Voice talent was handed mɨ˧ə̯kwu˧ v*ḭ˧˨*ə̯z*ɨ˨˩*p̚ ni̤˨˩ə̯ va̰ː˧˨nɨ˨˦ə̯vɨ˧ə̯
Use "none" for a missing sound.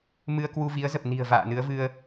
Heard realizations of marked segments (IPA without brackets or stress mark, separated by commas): i˨˦, ə˨˩